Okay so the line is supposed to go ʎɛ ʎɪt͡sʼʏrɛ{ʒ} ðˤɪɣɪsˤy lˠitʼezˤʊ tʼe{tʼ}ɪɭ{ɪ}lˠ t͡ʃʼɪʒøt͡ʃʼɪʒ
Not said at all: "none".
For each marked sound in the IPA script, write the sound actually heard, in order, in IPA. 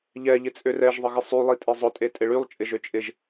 ʒ, tʼ, y

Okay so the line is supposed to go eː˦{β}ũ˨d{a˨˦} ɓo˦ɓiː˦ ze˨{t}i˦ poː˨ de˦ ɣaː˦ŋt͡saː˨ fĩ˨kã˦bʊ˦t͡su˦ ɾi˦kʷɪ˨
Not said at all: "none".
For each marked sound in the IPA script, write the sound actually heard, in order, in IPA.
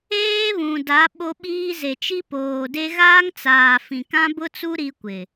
β, a˨˦, t͡ʃ

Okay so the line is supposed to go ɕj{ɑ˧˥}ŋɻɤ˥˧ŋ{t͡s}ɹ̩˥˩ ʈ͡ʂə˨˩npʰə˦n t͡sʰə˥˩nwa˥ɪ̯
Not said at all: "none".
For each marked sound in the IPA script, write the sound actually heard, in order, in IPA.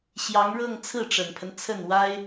ɑ˧˥, t͡sʰ

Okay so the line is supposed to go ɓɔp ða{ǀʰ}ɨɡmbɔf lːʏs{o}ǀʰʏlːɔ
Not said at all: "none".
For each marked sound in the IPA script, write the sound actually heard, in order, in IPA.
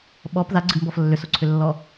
ɡ͡ǀ, o

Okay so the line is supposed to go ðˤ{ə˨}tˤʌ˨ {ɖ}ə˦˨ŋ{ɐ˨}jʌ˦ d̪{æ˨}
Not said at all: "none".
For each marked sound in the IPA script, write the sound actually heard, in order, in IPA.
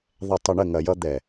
ɛ˨, ɳ, ɐ˨, ɛ˨

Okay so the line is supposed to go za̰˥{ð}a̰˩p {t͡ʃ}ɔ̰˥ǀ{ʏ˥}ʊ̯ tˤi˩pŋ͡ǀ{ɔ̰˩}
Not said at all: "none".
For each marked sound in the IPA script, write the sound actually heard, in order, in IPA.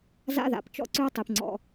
ð, t͡ʃ, ʏ˥, ɔ̰˩

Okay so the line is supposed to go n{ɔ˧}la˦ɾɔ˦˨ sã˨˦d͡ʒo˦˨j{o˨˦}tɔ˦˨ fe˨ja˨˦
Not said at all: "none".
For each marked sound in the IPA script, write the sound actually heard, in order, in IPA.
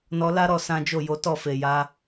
ɔ˧, o˨˦

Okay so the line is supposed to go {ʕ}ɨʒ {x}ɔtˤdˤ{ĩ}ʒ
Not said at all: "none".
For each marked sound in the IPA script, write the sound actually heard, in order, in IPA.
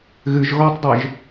ɣ, ɣ, i

